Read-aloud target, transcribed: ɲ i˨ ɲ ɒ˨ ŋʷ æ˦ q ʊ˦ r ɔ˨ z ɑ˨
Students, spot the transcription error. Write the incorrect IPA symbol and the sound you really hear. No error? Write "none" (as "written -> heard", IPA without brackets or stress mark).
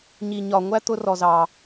q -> t̪